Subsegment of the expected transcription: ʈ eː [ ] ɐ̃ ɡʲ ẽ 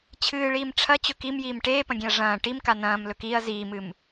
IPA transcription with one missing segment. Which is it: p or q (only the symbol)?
p